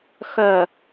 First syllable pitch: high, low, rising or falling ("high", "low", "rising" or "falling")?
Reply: low